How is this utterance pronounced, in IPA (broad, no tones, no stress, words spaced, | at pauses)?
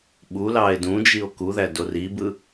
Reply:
ɓulɑe̯ dũd͡ʒio̯ kuðæ doribɯ